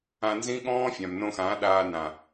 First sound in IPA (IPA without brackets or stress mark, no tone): ã